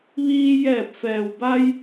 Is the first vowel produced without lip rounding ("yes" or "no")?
yes